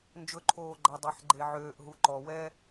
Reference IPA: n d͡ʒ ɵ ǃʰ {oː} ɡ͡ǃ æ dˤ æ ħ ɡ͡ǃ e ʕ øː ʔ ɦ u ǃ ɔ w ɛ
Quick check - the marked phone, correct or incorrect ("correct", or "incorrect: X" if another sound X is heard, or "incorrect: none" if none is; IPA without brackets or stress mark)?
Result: correct